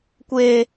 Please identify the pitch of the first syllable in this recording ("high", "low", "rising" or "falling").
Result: high